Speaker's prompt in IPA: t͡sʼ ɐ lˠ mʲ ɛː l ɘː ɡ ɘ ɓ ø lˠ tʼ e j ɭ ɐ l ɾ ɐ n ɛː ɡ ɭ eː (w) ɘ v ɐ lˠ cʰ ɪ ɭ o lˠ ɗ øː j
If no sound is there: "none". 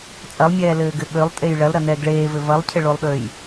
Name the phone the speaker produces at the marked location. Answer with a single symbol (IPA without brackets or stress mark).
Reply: v